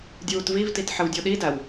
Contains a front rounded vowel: no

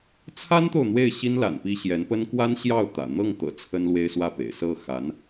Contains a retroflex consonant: no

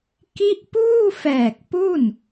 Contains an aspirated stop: no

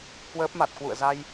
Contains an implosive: no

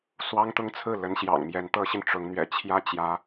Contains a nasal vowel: no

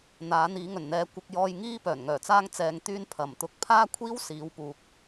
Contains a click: no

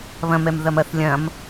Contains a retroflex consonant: no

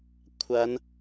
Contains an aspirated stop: yes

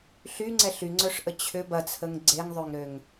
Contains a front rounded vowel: yes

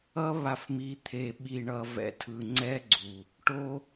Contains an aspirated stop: yes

